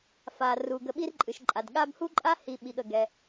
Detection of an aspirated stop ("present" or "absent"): absent